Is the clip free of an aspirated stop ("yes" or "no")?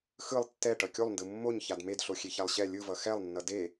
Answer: yes